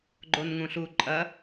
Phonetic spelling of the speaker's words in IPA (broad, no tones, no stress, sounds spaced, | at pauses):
ɡ͡ǃ o n ŋ ũ ɬ u ǃʼ ɐ